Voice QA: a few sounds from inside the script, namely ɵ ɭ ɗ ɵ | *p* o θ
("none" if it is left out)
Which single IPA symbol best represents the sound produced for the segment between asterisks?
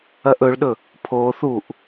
pʰ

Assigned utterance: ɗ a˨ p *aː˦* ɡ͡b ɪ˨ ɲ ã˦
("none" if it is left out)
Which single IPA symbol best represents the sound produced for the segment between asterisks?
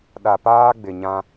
aː˦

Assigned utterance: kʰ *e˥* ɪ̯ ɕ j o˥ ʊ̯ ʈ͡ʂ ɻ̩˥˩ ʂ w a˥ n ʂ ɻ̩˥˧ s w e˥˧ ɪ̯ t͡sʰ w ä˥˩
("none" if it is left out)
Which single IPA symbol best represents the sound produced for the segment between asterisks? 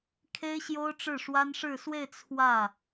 e˥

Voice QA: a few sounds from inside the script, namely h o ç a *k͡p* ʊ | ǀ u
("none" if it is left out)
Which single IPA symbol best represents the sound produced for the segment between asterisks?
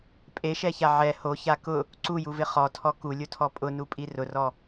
k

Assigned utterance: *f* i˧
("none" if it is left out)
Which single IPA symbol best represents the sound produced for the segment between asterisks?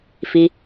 f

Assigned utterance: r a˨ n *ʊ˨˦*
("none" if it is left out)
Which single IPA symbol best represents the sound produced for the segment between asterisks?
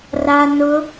ʊ˨˦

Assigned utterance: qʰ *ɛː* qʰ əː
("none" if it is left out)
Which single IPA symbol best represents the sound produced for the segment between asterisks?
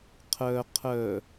əː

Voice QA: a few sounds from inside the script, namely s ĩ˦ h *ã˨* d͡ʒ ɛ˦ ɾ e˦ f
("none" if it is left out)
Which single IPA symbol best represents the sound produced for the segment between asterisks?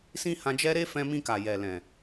ã˧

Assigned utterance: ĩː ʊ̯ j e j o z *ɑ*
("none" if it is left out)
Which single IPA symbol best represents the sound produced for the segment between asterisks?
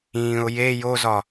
ɒ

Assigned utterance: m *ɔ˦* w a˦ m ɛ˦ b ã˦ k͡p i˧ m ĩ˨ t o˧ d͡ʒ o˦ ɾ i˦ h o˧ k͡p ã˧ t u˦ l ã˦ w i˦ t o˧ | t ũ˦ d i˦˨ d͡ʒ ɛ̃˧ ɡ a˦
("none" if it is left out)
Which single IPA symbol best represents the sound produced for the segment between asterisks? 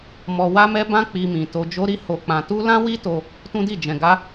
ɔ˧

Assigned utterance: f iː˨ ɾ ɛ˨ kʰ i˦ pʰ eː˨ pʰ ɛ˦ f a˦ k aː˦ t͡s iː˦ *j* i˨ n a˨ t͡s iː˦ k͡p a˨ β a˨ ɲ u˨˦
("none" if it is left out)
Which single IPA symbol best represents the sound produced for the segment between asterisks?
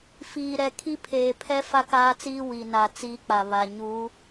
w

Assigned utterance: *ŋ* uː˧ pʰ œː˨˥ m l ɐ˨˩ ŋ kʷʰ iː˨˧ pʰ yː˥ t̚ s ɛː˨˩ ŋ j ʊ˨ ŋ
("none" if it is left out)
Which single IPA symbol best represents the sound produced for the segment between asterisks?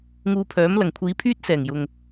ŋ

